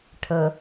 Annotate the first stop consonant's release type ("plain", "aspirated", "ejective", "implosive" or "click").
aspirated